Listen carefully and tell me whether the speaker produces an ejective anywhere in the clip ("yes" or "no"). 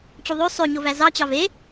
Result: no